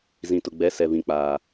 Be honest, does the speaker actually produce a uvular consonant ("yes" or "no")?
no